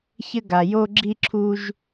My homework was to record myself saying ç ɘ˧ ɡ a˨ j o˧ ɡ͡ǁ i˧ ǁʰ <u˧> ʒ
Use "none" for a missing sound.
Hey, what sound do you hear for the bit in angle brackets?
u˧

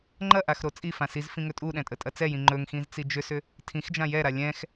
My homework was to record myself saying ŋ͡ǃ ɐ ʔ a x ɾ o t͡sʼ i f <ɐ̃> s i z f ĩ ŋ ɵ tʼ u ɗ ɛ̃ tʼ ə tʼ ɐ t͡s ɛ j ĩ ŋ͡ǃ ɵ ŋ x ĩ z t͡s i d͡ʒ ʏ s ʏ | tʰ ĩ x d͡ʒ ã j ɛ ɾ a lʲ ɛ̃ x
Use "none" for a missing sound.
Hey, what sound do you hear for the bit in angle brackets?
ã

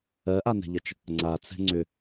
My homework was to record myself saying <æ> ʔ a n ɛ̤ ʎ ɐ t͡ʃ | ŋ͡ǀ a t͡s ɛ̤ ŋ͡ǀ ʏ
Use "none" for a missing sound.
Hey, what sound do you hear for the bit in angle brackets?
ɜ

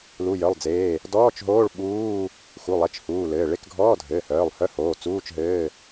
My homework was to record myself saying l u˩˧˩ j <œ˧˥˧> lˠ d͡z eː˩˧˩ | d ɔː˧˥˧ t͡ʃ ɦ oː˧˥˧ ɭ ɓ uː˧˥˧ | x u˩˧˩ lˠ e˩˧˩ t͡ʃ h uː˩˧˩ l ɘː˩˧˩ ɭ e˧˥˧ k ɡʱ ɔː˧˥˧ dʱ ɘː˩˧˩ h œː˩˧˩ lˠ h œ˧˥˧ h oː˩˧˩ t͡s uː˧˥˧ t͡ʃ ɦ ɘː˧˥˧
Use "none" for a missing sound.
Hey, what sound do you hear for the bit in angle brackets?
œ˩˧˩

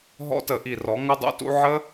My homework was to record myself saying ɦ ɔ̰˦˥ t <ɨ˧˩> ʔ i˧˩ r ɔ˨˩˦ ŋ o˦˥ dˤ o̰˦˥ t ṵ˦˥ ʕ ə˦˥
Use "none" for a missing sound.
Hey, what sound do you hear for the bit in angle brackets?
ə˧˩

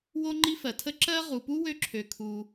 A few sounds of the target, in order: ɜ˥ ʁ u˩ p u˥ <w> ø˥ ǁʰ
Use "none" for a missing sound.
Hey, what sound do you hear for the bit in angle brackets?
w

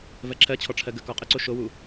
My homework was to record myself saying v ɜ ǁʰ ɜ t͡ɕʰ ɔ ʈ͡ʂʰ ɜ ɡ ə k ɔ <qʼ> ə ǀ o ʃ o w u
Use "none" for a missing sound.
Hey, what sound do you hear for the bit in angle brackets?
qʼ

